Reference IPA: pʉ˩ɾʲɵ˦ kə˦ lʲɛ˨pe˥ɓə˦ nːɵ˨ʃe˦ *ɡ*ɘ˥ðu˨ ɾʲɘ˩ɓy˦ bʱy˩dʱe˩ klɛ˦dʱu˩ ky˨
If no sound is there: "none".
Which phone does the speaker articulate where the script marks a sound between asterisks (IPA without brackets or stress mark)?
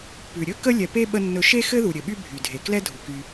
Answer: x